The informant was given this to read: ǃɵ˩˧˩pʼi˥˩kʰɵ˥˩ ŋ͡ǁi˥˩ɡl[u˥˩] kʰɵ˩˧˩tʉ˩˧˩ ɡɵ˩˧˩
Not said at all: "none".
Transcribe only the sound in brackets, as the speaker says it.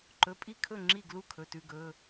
u˥˩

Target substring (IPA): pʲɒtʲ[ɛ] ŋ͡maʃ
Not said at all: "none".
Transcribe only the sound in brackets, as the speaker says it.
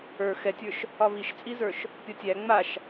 æ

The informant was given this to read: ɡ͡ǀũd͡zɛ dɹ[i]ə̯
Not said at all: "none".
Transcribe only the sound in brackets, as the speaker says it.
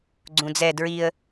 i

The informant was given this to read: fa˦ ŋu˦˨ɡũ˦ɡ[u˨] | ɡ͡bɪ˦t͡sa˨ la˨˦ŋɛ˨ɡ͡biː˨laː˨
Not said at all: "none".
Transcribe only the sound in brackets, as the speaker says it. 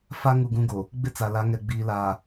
o˨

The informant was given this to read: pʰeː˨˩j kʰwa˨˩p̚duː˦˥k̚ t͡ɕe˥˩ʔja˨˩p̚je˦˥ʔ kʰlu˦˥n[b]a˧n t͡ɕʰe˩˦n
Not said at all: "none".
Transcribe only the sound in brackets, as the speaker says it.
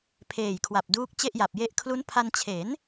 pʰ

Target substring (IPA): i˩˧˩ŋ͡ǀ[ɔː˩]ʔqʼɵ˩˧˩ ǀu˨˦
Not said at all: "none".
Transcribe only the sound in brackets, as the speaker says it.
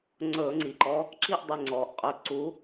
ɔː˩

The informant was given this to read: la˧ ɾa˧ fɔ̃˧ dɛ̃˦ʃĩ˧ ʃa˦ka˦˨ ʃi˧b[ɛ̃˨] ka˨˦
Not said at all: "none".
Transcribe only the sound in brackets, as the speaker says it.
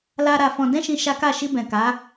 ɛ̃˨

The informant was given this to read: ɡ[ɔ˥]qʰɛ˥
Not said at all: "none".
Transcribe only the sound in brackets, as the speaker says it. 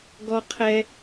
ɔ˥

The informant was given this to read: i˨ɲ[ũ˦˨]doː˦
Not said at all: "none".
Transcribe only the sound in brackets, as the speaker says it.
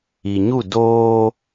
u˦˨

